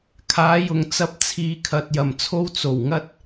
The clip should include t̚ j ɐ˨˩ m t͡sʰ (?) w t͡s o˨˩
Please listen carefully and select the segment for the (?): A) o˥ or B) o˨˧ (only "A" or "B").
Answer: A